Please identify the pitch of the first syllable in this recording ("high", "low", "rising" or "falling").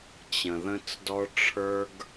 low